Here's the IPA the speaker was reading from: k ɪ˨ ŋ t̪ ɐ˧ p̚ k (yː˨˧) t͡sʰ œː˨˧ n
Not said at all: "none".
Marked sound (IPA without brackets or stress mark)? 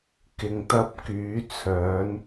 yː˨˧